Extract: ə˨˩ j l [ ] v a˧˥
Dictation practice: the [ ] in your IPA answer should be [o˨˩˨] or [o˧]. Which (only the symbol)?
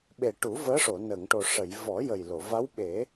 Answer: o˨˩˨